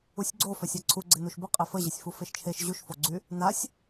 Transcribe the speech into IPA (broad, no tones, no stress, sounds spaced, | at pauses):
u sʲ ɡ͡ǀ o f œ sʲ a ǀʰ u ɡ͡ǀ ɪ n u ʃ b ə qʼ e f ə ʑ ɪ sʲ f u f e ʃ t͡ʃʰ e ʃ ʑ u ʃ f o ɡ͡ǀ y | n a sʲ